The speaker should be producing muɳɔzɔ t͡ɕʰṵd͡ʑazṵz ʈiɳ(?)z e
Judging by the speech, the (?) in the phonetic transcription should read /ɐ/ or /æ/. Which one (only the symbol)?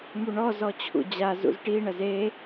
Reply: ɐ